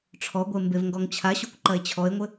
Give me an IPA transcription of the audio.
ʈ͡ʂʰɔɡʷe mbevŋɡɔŋt͡ɕʰaɕokʷ ǃɐe̯t͡ɕʰɔe̯ŋʷɘ

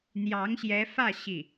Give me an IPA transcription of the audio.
n̪jɑ˧˥ŋɕjɛ˧˥fä˥˧ ɕi˥˩

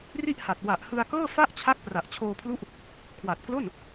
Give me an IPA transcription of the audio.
ri˥˩ʔha˨˩t̚ wa˨˩ʔ hɯ˧a̯kɤː˥˩fa˥˩ʔt͡ɕʰa˦˥k̚ pra˨˩ʔt͡ɕʰoː˧pʰlu˦˥ʔ | kʰwa˨˩t̚klo˥˩n

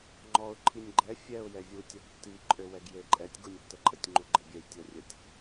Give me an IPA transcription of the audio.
ŋ͡ǃɔʊ̯ ǃʰinʲɡ͡ǃɛ fʲɛʊ̯ jɛvʲu tʲɔɡtːi ǃʼøwɛɡjeǃʼɛtʲ ɡunʲtːəǃʼətʲ ŋ͡ǃuɡ͡ǃebʲɛj tʲɔrʲətʲ

